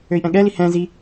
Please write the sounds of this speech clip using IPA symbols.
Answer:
ø i̯ ʔ ɛ̃ ɠ ɛ l i h ɛ̃ z i

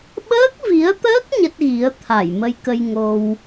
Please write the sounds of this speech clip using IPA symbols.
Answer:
ɓ əː˦˥ k̚ v i˨˦ ə̯ t̪ əː˦˥ k̚ ɲ ə˦˥ t̚ ɣ i˨˦ ə̯ t̪ʰ a˧˩ j m ə˧ j k ə˧ j ŋ o˧ w

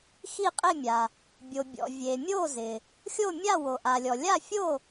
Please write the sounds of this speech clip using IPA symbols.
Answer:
x i˥˩ qʼ ɪ˥˩ mʲ a˩ | bʲ o˩ bʲ ɔ̰˩ vʲ e˩ mʲ o˥˩ z ɪ˩ | xʲ o˥˩ mʲ a˥˩ w o˩ ʔ a˩ lʲ ɔ˩ lʲ a˥˩ fʲ o˥˩

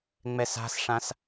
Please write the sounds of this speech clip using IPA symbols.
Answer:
ŋ͡m ɛ s a̤ s ʂ ã s

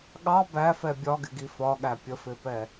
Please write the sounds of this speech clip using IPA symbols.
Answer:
ɠ ɑ b æ f ɛ bʲ ɒ ɡ ɪ ɡ i f ɒ ɠ æ pʲ ə f ɪ p ɛ

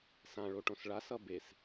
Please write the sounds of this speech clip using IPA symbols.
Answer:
s ã ɭ o ʈ õ s ɭ a s ʌ b e s

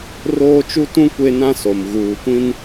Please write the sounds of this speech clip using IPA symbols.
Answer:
r oː˦ t͡ʃ u˦ t ũ˦ kʷ e˦ n ã˦ s o˨ m ɣ uː˨ kʷ ĩ˦ n

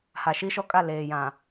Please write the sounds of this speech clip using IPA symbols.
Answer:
h a˨ ʃ i˦ ʃ ɔ˦ kʼ a˦˨ l eː˨ j ã˨

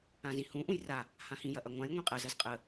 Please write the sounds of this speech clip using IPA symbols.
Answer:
ã z ĩ h ũ ʔ ũ j r a | h ã h ĩ j ɐ ʔ ɐ ŋʷ ã j ŋʷ ĩ qʼ ɐ z ɐ z qʼ ə

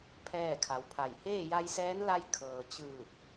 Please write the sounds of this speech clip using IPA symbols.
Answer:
pʰ ɛː˥˨ kʰ a˩˧ w pʰ a˧˩ j h eː˥˨ j a˧ j s ɛː˧˥ n l a˧ j kʰ ɤː˩ t͡ɕ ɯː˧˩ k̚

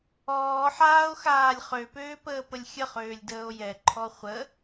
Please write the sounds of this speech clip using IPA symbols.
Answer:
ɔː ħ aː o̯ x aː lʲ χ ø p øː p əː p ə lʲ xʲ ə χ øː lʲ d əː o̯ j ɛ ǃʰ ɔ χʷ ə

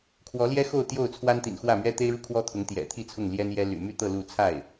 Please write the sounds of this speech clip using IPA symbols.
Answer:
kʰ w ɔ˧˥ l j ɛ˥ x o˥˧ ʊ̯ t̪ j o˥˩ ʊ̯ t͡sʰ w a˥ n t̪ ḭ˨˩ n x w ä˥˩ m ɥ ɛ˥ t̪ e˥ ɪ̯ ɻ u˥˩ kʰ w ɔ˥ t̪ʰ ʊ˧˥ ŋ t̪ j ɛ̰˨˩ t̪ʰ i˥˧ t͡sʰ ʊ˥˩ ŋ l j ɛ˥ n j ɛ˥ l y̰˨˩ m y˥ t̪ ɤ˥˧ l u˥˧ t͡sʰ a˥˩ ɪ̯

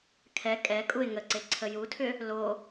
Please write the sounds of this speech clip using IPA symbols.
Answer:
kʰ ɛ kʼ ɛ kʼ u ɪ̯ ŋ ə ǀ e ǀʰ ə j u tʰ ʏ | l o

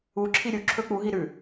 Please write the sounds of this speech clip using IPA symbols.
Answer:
u ǁʰ i ɾʲ u ǁʰ ɵ k͡p u ɦ i ɾ ʉ

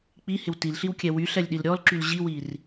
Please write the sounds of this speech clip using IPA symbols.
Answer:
k͡p i h ɪ w t i l ɬ i w kʲ ɛ w y ɬ ɛ lʲ ɗ i l ɾʲ ɔ l ǁ y l ʑ i w i r

